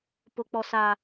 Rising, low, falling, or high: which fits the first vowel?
high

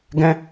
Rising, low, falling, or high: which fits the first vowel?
high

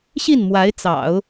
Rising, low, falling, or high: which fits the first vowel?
falling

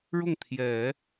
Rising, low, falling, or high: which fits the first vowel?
falling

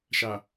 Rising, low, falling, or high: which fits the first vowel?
low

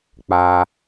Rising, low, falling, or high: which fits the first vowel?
high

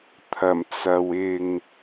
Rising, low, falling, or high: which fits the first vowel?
low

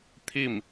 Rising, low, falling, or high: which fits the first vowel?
falling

